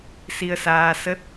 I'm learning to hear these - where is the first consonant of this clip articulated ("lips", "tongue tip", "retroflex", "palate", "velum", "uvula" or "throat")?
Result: tongue tip